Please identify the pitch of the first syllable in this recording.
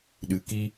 low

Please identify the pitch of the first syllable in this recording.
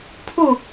falling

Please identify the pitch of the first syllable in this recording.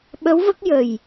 rising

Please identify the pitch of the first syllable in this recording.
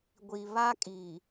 low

